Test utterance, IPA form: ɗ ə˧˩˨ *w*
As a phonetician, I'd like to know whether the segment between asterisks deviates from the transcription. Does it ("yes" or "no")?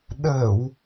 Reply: no